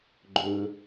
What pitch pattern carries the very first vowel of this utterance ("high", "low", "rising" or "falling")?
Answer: low